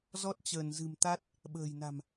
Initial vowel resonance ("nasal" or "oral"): oral